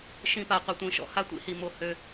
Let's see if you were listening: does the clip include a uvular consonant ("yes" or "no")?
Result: yes